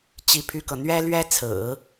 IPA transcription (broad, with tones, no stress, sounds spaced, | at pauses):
t͡ɕ i˥ pʰ y˥ k ɤ˨ n̪ ɥ ɛ˥ l ɥ ɛ˥ t͡sʰ ɹ̩˨˩˦